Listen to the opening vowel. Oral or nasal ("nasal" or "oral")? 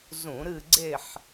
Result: nasal